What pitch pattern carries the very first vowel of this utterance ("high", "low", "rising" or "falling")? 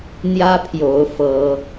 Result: high